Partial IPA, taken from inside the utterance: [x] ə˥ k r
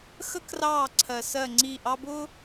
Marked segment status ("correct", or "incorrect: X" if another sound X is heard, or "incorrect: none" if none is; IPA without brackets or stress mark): correct